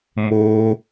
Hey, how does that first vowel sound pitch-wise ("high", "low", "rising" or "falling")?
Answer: high